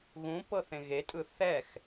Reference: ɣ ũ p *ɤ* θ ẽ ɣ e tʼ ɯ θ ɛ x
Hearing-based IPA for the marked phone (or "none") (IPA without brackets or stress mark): ɤ